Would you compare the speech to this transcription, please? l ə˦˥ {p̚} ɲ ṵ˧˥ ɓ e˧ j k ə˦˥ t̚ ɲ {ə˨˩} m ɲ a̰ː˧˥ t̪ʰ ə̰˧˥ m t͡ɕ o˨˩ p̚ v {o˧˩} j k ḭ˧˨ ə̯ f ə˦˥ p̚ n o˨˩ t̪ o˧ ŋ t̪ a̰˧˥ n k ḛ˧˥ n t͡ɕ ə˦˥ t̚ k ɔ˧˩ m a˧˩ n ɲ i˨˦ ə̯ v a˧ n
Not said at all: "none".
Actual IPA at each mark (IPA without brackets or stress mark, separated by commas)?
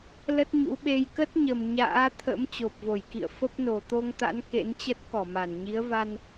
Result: t̚, ə˨˩, o˧˩